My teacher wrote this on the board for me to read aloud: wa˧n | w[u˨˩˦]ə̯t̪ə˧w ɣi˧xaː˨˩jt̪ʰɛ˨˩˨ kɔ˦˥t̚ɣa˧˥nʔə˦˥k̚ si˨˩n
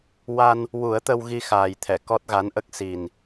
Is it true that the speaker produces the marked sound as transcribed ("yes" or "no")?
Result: yes